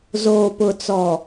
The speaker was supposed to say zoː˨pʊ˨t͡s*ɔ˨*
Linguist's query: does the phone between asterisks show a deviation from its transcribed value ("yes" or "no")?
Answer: no